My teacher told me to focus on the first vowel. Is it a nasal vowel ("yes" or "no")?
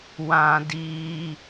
yes